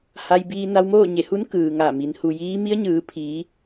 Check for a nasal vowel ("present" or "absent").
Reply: absent